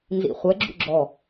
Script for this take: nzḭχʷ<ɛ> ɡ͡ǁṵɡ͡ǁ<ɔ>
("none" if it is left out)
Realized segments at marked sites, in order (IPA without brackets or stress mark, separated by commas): ɛ, ɔ